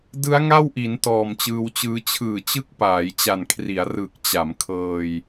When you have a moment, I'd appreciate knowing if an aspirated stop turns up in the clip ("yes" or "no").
yes